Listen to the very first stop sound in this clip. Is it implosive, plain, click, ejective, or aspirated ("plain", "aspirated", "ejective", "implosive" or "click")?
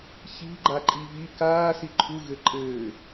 click